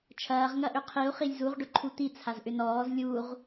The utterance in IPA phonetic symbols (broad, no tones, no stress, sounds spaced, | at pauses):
t͡ʃʰ ɐː ʁ ŋ ɐ ʔ ʏ qʰ i u̯ χ i lʲ z u ʁ ɖ ʊ ǃʰ u t̪ i t͡sʰ a z ʔ ʏ n ɔː z lʲ u ʁ